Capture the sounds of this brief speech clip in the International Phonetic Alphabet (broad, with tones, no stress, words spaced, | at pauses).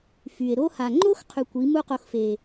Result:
fy˨e̯ɾo˦ ha˨ŋ͡ǃo˦x qʰy˧kʷi˨˦ mu˦qo˧xfe˨